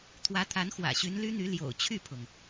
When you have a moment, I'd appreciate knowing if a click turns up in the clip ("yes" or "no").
no